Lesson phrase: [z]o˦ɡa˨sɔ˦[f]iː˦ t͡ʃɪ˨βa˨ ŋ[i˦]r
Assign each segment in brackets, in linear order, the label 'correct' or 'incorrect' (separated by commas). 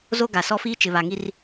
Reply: correct, correct, correct